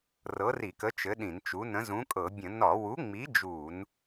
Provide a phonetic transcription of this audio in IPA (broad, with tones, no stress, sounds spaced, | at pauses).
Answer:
r ɤ˨˥ r i˧˩˧ k ə˨˥ t͡ʃ ɘ˨˥ ɗ ĩ˧˩˧ n t͡ʃ u˨˥ n ə̃˨˥ z ũ˨˥ kʼ ɤ˧˩˧ bʲ ə̃˧˩˧ n ɒ˧˩˧ w u˨˥ ŋ͡m i˨˥ d͡ʒ u˧˩˧ n